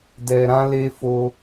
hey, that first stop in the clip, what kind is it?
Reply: plain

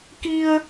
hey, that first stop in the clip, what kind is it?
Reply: plain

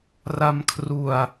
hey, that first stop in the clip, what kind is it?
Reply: aspirated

